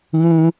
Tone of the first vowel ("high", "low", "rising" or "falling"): high